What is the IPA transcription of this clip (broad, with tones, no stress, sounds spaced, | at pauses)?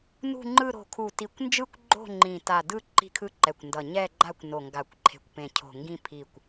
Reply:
n ṳ˦˨ ŋ͡ǃ ɯ˦˨ ɾ o̤˨˩ kʰ u˨˩ t i˨˩ kʷ n d͡ʒ ɯ˦˨ kʷ ɡ͡ǃ o̤˦˨ ŋ͡ǃ ĩ˨˩ t a˨˩ d ɯ˦˨ ǃ i̤˦˨ kʰ ɯ˦˨ ǃ ɛ˨˩ kʷ n d ʌ˨˩ ɲ ɛ˦˨ ɡ͡ǃ a˦˨ kʷ n o˨˩ ŋ ɡ a˨˩ kʷ ǃʰ e̤˨˩ kʷ p ẽ˨˩ cʰ o̤˨˩ ŋ ɡ ĩ˦˨ pʰ i˨˩ kʷ